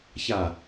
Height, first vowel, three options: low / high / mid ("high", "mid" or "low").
low